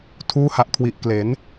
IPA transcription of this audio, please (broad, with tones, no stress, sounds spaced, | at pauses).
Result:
tʰ uː˦˥ h a˨˩ ʔ kʰ w i˨˩ ʔ k l e˩˦ n